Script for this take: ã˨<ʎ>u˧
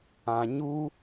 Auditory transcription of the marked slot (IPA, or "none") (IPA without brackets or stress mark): ɲ